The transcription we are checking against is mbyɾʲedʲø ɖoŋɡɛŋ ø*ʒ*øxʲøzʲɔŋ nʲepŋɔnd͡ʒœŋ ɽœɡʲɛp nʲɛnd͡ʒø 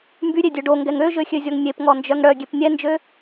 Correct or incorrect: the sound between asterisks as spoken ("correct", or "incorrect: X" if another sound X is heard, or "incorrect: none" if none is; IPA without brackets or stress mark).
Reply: correct